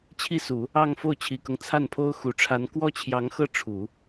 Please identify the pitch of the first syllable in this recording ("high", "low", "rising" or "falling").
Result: falling